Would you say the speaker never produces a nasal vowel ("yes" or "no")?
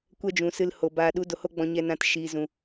no